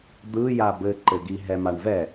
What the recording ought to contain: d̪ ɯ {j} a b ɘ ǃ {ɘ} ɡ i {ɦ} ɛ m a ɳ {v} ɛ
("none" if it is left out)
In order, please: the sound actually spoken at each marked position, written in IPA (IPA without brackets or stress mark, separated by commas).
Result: j, ɘ, ɦ, v